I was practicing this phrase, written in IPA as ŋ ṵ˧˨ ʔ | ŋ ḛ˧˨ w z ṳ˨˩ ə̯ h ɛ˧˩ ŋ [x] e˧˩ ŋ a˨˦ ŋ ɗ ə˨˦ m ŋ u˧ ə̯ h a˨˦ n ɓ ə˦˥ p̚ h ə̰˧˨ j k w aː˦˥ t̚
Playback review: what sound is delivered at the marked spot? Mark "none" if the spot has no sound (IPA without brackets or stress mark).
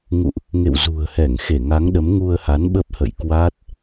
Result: x